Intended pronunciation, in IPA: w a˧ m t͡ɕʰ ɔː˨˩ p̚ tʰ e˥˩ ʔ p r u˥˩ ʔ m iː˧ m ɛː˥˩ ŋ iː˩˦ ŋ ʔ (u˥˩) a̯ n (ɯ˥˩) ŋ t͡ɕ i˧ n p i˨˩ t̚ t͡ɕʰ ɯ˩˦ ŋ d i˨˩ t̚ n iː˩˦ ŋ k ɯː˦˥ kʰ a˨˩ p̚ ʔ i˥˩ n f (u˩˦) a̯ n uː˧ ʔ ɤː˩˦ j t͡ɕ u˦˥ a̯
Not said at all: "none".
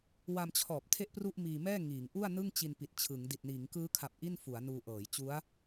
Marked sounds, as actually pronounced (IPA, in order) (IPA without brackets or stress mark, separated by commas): u˥˩, ɯ˥˩, u˩˦